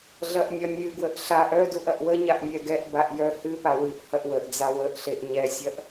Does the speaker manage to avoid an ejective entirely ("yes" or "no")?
yes